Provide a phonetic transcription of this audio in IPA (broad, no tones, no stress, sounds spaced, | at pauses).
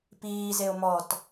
p iː z e o̯ m ɔ t